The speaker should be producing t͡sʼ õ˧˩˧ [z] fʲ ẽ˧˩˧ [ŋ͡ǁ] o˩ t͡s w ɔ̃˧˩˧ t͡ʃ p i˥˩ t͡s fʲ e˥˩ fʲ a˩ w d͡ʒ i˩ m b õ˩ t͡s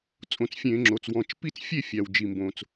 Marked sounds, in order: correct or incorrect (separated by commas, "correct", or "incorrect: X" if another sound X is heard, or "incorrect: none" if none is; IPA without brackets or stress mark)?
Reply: incorrect: t͡s, correct